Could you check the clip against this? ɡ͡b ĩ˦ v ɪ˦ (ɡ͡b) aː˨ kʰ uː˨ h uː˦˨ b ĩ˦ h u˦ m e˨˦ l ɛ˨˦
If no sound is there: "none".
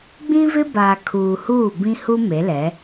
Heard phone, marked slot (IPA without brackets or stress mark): b